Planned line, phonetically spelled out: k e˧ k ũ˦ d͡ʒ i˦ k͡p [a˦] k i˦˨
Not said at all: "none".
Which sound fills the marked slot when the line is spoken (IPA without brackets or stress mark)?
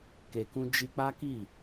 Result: a˦